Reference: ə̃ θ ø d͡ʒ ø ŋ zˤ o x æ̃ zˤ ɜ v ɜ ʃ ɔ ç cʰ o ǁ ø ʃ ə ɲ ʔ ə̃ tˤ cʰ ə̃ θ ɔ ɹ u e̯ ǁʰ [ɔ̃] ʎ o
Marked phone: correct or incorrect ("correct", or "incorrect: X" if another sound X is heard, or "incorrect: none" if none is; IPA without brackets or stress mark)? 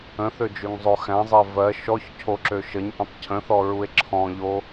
correct